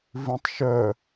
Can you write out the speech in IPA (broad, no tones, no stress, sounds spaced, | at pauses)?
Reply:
v ĩ tˤ ʃ œ